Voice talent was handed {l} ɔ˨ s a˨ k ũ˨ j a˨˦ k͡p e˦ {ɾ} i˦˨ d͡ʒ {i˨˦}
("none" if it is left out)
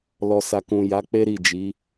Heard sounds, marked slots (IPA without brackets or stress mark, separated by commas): l, ɾ, i˨˦